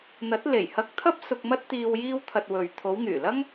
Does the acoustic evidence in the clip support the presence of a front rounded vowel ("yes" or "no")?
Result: yes